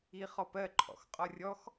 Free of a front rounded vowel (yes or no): yes